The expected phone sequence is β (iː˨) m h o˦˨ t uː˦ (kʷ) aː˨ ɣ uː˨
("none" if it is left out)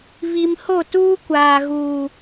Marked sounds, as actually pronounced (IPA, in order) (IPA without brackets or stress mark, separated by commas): i˨, kʷ